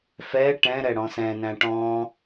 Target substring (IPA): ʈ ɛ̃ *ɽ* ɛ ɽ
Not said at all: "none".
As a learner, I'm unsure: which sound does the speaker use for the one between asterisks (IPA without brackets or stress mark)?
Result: ɾ